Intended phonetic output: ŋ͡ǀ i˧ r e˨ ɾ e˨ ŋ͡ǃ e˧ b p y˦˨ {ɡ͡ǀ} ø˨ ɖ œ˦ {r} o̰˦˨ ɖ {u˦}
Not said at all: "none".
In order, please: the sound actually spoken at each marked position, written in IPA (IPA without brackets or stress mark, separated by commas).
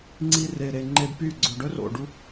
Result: ɡ͡ǀ, r, u˦